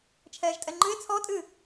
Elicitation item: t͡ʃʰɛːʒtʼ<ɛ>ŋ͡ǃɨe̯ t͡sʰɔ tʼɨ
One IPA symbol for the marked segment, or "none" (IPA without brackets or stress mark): ɛ